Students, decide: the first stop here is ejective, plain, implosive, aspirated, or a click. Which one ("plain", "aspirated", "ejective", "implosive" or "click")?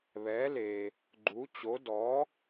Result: click